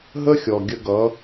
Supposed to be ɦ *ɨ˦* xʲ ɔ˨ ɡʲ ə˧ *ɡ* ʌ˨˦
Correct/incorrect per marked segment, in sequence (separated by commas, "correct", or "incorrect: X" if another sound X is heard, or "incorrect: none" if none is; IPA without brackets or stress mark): incorrect: ə˦, correct